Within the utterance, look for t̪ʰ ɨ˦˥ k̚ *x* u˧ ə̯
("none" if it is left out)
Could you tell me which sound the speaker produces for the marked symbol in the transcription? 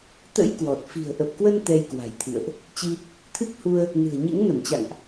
h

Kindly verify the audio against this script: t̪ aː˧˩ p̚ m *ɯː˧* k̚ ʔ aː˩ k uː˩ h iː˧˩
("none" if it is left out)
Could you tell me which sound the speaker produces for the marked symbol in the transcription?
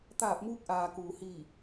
uː˧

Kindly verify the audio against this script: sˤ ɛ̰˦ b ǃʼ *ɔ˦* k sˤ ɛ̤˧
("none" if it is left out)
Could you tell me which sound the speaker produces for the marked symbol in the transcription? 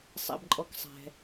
ɔ˦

